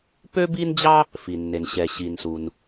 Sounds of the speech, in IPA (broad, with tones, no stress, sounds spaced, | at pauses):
p ø˥ b i˥ n d͡ʑ ɑ˥ | f i˩ nː e˩ n ɕ ɛ˩ ɕ i˩ n s u˩ n